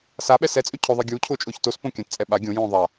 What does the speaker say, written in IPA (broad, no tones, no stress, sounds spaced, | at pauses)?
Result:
s a ɓ ɛ s ɛ t͡sʼ ø cʰ ɵ ðˤ ɛ ɡʲ uː cʰ ʊː t͡ʃʼ ʊː ç t o s p õ kʲ ã t t͡sʼ ɛ ɓ a ɡʲ õ j õː ðˤ a